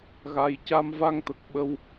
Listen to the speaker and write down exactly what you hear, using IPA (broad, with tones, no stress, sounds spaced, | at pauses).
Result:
ɣ a˨˩ j c a˧ m v a˧ ŋ t̪ ə˨˩ k̚ ɓ ə˧ w